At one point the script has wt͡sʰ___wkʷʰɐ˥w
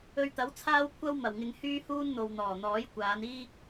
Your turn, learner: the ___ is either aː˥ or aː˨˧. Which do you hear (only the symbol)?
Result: aː˥